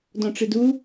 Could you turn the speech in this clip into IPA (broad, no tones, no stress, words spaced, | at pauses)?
dɔ̃ʈ͡ʂɨdu